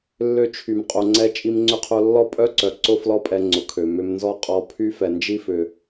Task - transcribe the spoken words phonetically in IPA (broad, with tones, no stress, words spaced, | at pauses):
lːø˦t͡ʃʰy˨mqʼo˨ŋ͡ǀɛ˦ t͡ʃʼi˦mŋ͡ǀʏ˦qʰo˦ lːɔ˥pʼœ˥ǀœ˩ ǀʊ˥flɔ˦pʼɛ˨ ŋ͡ǀʊ˩kʰø˩ mʏ˨mnzɔ˦ qʼɔ˨pʰy˦fɛ˩ nd͡ʒi˥fʏ˩